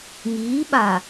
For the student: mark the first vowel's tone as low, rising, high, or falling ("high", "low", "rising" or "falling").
rising